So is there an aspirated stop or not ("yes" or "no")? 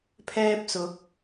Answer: yes